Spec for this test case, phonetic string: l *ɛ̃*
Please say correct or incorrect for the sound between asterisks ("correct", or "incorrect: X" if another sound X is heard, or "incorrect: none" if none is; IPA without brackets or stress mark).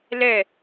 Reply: incorrect: ɛ